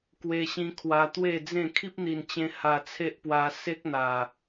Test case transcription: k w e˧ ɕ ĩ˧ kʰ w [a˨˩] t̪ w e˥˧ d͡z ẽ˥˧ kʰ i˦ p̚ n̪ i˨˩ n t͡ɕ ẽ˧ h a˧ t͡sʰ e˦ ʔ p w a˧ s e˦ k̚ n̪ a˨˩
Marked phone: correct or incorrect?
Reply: incorrect: a˧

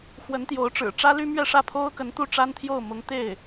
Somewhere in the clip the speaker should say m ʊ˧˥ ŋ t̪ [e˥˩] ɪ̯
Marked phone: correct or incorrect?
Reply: correct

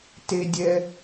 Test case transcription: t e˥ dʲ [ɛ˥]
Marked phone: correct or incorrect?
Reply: correct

